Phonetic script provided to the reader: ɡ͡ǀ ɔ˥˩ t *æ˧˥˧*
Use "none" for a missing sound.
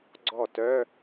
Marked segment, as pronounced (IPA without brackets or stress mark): œ˧˥˧